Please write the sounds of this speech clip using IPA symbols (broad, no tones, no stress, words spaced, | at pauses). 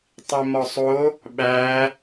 tˤimɒsˤo | ɓæ